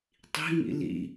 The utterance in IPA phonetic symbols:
tˤ i̤ ŋ ḭ l ḭ

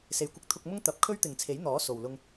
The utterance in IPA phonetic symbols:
s e˨ j kʷ ɪ˧ k̚ t̪ʰ ʊ˧ k̚ m ʊ˥ ŋ t̪ ɐ˨˥ p̚ kʰ ɵ˥ ɥ t̪ ɪ˨ ŋ t͡sʰ e˨˥ j n̪ ɔː˨˥ s o˨ w l ʊ˧ ŋ

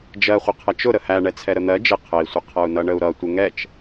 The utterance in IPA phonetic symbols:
d͡ʒ ɜ χʷ ɪ qʰ ʌ t͡ʃ ʊ ɾ ə h æ ɳ ɛ t͡sʰ ɛ ɾ ə n̪ ɜ d͡ʒ ɪ qʰ ə i̯ sʷ ɪ qʰ ʌ u̯ n ʌ ɳ ə u̯ ɾ ʌ tʷ ɪ ŋ ɛ t͡ʃ

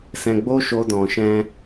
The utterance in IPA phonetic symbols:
s ɛ̃˧ ɡ͡b o˦ ʃ o˧ d ɔ̃˨ ʃ ɛ̃˧

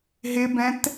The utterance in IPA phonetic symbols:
ɦ ɪ b ɛ̃ t

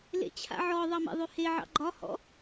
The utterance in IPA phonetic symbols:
l ḛ t͡ɕʰ a̰ ʕ ɔ ðˤ ɑ m ḛ ðˤ ʉ h e ʕ ɑ̰ ɡ͡ǃ ɒ h ɔ̰

